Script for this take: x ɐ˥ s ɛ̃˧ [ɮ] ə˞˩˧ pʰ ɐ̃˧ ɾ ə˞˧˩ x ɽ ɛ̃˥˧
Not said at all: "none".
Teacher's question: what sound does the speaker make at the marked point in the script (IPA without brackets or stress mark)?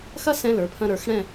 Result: l